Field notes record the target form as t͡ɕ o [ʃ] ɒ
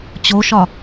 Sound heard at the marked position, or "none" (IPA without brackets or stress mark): ʃ